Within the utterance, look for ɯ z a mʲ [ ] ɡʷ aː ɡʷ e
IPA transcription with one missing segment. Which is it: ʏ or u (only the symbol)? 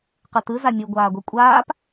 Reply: u